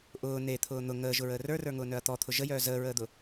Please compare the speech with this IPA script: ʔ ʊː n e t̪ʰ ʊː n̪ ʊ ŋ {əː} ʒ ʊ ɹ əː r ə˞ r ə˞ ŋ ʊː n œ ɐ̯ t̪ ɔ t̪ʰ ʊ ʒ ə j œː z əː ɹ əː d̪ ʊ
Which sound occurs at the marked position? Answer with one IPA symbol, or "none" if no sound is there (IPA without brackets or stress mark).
əː